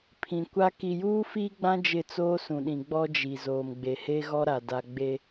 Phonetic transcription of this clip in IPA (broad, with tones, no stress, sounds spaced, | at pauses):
pʰ ĩ˨ kʷ a˦ k i˨ j uː˦ f iː˦ ɡ͡b ã˦ d͡ʒ ɪ˦˨ t͡s oː˦ s ũ˨ ɗ ĩ˨ ɡ͡b ɔ˦ d͡ʒ i˨ z oː˨ m ɡ͡b e˨ h e˦ ɣ ɔ˦ ɾ a˨ d a˨ ɡ͡b e˦